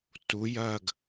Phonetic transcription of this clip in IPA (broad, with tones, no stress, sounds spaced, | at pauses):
t u˩˧ j ɐː˧˩ ɡ